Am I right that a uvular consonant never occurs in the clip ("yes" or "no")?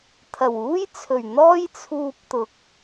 yes